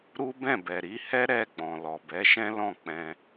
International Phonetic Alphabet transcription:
ɾ u˦ b ɛ̃˦˨ b ɛ˨ ɾ i˨˦ h ɛ˦ ɾ ɛ˦˨ ɡ͡b ɔ̃˨ l ɔ˨ b ɛ˨˦ ʃ ɛ̃˦ l ɔ̃˦˨ k͡p ɛ̃˧

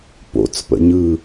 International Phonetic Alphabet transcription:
p o̰ t͡s p ə̰ ɲ ɯ

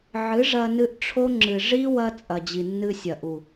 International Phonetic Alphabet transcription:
ʕ ɨ˨˦ ʐ ɐ˧ n ɨ˧ ʔ ʈ͡ʂʰ o˦ ŋ͡ǁ ɨ˨ ʐ i˦ w ɐ˦ t͡sʼ ɐ˨ d͡ʑ i˨ nː ɨ˧ sʲ ɐ˨ ʔ u˨

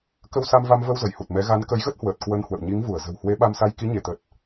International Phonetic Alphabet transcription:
k ə˧ w s a˧ m v a˧ m v ə˧ w z ə˧˩ j h u˨˩ t̚ m ɛ˨˦ ɣ a˨˦ n k ə˨˦ j ɣ ə˦˥ t̚ h w əː˨˩ t̚ k w ə˧ n h w ə̰˧˨ w ɲ i˨˦ ŋ v u˧˩ ə̯ z ə̤˨˩ w h w e˨˦ ɓ a˧ m s a˧ j k i˨˦ ɲ e˧˩ t̪ ə˨˩ t̚

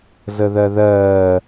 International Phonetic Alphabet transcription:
z ə ð ɜ ð ɜː

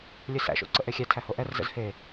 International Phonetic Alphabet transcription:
lʲ ɵ s æ̰ ʃ o̰ ǀ ə ʔ e xʲ æ tʰ æ h o ʔ ɛ r z ə̰ z h e

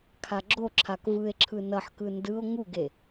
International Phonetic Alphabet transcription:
kʰ a ɡ͡ǁ o ǁʰ a k v ɯ e̯ ǁʰ ɯ n ʌ ħ k ɯ n d ɯ o̯ ŋ u ɡ e

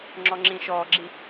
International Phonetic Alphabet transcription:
ŋ͡ǁ ɔ ŋ͡ǁ ĩː ʃ ɔː ɡ͡ǁ i

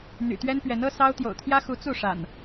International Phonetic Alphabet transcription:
n̪ y̰˨˩ t̪ ɥ ɛ˦ n p ɥ ɛ˨˦ n ɤ˦ s ɑ˦ ʊ̯ t̪ j o̰˨˩ ʊ̯ t̪ʰ j ä˦ x u˨˦ t͡s u˥˨ ʂ a̰˨˩ n

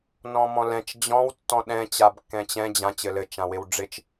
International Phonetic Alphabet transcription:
n ɔ̃ m ɔ̃ l ɛ̃ t͡ʃ d͡ʑ ɔ̃ w tː ɔ̃ ɗ ɛ̃ t͡ɕ a b kː ɛ̃ t͡ɕ ɛ̃ d͡ʑ ã t͡ɕ ɘ l ɘ t͡ʃ ã w ɪ w ɖ͡ʐ ɪ t͡ʃ

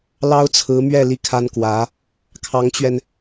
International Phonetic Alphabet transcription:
l ɑ˥ ʊ̯ t͡sʰ ɹ̩˧˥ m ɥ ɛ˥˧ l i˥˩ kʰ a˥ n k w ä˧˥ | kʰ ɑ˧˥ ŋ t͡ɕ ɥ ɛ˧ n

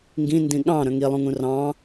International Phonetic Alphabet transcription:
ŋ ɡ ĩ n d ĩ ɠ ɑ̃ ɾ œ̃ ŋ i lˠ ũ ŋ ũ r ɑ̃

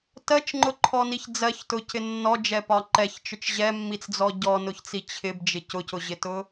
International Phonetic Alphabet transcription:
t ɜ t͡ʃ ŋ͡ǃ ʊ ǃʰ ɔ n i ç d͡z ɜ ç t ʊ c ɪ nː ɔ d͡ʒ ɛ p ɒ ǃ ɛ ç t͡ʃ ʊ t͡ʃ ʑ ɛ mː i t͡s d͡z ɔ ɟ ɔ n ʊ ç t͡s i t͡ɕʰ ɪ b d͡ʒ ɪ c ʊ c ʊ ʑ ɪ t ʊ

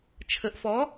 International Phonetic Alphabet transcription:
t͡ʃʰ ə ʔ f ɔ

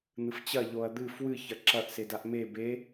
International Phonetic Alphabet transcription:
n̪ ɨ f t͡ɕ ɐ ʎ o ɐ̯ d̪ ɨ f w ɨ ç ɐ ǁ ɐ ʔ s e d a ʔ m e b e

